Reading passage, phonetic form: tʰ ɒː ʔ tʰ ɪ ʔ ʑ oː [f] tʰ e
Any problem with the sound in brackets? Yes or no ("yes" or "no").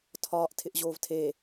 yes